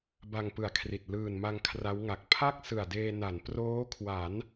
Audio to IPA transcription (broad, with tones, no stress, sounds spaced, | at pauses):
b a˧ ŋ p ɯ˨˩ a̯ kʰ r i˨˩ t̚ l ɯː˨˩ n m a˧ ŋ kʰ r a˦˥ w ŋ a˨˩ k̚ pʰ a˥˩ k̚ s ɯ˨˩ a̯ d eː˧ n a˩˦ n p r oː˦˥ kʰ w a˩˦ n